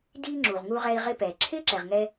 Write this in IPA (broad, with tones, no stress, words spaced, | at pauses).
diː˧ ŋ͡ǁu˩ʁŋu˧ʁɛ˧i̯ ʁɪ˧pɛː˩ ǁʰɪː˥ǁɛ˩ʁ ŋɛ˧